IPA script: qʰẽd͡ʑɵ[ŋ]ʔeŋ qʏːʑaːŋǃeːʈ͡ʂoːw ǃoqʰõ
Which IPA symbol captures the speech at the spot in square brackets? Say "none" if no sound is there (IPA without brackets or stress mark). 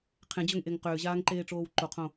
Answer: ŋ